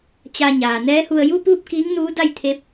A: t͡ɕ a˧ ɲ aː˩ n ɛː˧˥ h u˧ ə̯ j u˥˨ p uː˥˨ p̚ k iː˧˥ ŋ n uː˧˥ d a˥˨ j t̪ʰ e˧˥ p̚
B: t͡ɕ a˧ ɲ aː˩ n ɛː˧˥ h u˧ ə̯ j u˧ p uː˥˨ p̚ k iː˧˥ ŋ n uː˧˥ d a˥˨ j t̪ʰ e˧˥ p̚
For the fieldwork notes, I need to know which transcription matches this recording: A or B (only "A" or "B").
A